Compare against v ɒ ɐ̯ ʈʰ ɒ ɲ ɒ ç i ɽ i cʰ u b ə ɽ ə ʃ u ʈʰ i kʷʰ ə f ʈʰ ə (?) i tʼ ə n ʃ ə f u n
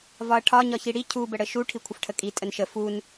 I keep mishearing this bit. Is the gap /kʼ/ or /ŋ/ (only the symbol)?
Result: kʼ